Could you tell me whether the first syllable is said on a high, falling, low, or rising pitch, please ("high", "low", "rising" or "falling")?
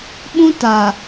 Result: high